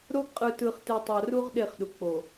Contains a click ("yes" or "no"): no